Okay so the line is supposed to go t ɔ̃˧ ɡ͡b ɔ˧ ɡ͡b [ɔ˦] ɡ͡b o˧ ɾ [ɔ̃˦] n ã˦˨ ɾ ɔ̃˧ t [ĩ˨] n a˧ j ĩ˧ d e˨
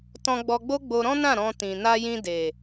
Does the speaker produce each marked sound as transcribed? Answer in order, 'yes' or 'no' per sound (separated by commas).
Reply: no, yes, yes